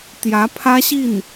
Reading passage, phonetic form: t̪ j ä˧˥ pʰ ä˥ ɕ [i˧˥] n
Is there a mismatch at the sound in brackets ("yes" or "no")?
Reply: yes